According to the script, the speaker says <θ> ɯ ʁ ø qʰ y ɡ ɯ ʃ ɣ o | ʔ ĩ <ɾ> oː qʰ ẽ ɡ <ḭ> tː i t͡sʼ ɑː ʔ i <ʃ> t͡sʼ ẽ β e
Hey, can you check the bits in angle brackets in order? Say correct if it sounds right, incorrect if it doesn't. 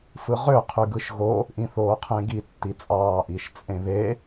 incorrect: f, incorrect: θ, incorrect: i, correct

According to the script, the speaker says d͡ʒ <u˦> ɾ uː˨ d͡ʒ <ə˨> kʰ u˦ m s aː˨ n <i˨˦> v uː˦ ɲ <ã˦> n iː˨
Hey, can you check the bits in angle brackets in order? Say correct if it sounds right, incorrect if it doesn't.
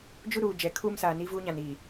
correct, incorrect: ɛ˨, incorrect: i˦, incorrect: ã˨

